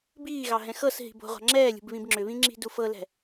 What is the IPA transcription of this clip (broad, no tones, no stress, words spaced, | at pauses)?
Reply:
biːɣɑ ɦɛ̃xɤsɦi̤ bo̤ʁʷɑ̤ ŋ͡ǁɛːlʲṳb βĩbŋ͡ǁʏβĩ ŋ͡ǁi̤dufɤlɛ̤